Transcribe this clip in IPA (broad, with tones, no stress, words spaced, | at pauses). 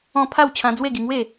ɔ̃˥˧ pʰa˥˧w t͡ɕʰã˧ d͡zwe˥˧ɡi˧ ŋwe˥˧